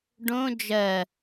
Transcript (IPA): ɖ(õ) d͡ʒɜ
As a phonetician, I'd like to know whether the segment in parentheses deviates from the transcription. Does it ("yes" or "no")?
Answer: no